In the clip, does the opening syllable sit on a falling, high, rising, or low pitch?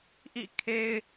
falling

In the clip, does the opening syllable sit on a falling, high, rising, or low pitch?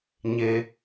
low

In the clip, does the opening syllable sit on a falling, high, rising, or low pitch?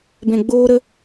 low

